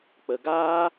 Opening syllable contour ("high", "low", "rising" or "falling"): low